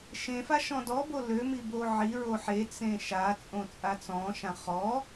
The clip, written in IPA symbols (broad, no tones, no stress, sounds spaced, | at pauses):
ʃ ẽ f a ʃ ɔ̃ d ɔ b o l ø m i b o ʕ i ɹ o ħ e t͡s ẽ ʃ a t͡sʼ õ t͡sʼ a t͡s ɔ̃ ʃ ã χ ɔ